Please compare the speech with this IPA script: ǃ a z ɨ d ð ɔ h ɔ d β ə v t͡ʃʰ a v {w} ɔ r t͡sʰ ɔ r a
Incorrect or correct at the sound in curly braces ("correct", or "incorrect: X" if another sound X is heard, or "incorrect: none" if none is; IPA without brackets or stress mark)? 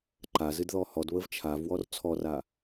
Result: correct